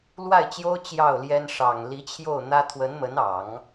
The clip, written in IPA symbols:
lwa˥˩ɪ̯t͡ɕjo˥ʊ̯ t͡ɕjɑ˥˩ʊ̯ljɛ˥n ʂɑ˨˩ŋ li˧˥t͡ɕʰjo˥˩ʊ̯ n̪ä˥ t̪ʰwə˧˥nmə˧˥nɑ˨˩˦ŋ

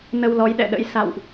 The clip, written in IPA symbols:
nə˧wlɔ˨˦jɗɛ̰˧˨ɗə̰˧˥j sa̰˧˨wʔ

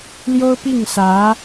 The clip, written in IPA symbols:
ljo˥ʊ̯pi˥˩ŋsä˧˥

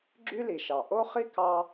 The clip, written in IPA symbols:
ɡ͡ǁy˥li˩ʃɑ˩ ʔo˥χi˥ kɑ˥

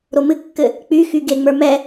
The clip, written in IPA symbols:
ɾomɨkːɘ | k͡pyxy ɡeŋ͡mə˞ mɛ

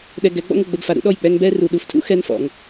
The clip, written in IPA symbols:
ɗɛ˧ ɡɛ˨˦ɡ͡bɔ̰˦ŋʊ˨ ɡ͡bə˧bfa˨ɾṵ˧ ɗɔ˦˨j k͡pɛ˧ŋ bɛ˦ru˨ɗu˨ftʰṵ˦ xɛ˦nfɔ̰˨ŋ

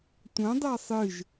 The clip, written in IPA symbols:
tʷɐ̃dˤa sˤɨʒ

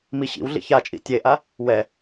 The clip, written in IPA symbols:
miɕḭwɮḭ çat͡ʃʼḭ tʲeʔa | wɛ

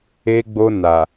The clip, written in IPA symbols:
e˧ɡ͡bo˧ na˨

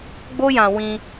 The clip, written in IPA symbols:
ɡ͡bo˦jã˧ wĩ˧

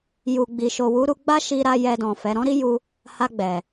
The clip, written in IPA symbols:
ju˨ ɡ͡bi˨ʃo˨wu˨˦ɾu˧ ɡ͡ba˦ʃi˧ɾa˧ jɛ˧dɔ̃˨fɛ˨˦ ɾɔ̃˦ɾi˦ ju˦ | ha˧ɡ͡bɛ˨

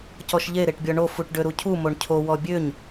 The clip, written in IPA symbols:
cɔʃʎe ɾeʈbʲɔɳo fuʈɖøɾucʰu moɳcʰo wɔbʲøɲ

